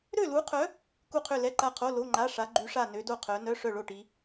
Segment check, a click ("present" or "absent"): present